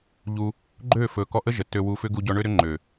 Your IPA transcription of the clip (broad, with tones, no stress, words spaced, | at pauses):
ʎu˧ | ɡ͡ǃøː˦˨fɵː˨kɔ˧ʔə˦ ʒə˨tːø˧ wu˧fʏ˦ ɡu˧ɟɔ˧ɳø˦ɾʏ˦ ŋ͡ǃø˨